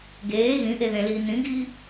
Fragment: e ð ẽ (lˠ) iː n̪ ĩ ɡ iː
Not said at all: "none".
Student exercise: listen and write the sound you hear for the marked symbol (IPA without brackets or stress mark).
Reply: l